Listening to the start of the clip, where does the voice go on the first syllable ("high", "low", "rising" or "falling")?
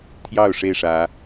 falling